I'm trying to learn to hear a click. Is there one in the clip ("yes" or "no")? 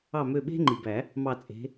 yes